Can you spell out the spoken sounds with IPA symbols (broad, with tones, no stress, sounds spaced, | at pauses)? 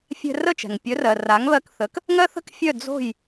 fʲ ɛ̤˧ r ə˥˩ t͡ʃ ɛ̤˩ ŋ pʲ œ˩˥ r ɜ˩ r a˩˥ ŋ β ɜ˧ k θ ə˩˥ k | ŋ ɜ˥ θ ə̤˥ k fʲ œ˥˩ d͡z o̤˥˩ j